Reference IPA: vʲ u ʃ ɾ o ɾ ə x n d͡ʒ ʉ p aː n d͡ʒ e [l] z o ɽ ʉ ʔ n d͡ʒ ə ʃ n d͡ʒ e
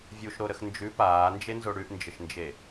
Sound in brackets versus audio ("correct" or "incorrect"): incorrect